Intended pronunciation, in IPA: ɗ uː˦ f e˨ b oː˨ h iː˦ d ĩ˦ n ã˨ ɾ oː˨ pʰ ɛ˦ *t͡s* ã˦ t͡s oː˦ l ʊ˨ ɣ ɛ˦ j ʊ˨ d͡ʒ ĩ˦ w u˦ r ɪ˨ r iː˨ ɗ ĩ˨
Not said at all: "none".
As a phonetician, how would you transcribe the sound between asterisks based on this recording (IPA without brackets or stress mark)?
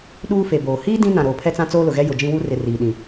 t͡s